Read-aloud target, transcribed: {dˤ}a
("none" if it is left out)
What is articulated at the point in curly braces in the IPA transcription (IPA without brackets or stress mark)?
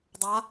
dˤ